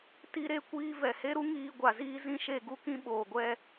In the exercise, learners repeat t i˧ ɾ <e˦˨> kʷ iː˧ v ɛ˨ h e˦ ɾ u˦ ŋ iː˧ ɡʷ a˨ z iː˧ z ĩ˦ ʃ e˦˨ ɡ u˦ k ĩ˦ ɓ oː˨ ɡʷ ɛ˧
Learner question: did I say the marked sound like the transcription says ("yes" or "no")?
no